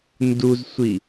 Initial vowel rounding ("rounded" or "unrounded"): rounded